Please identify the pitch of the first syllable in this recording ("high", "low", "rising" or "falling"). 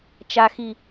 low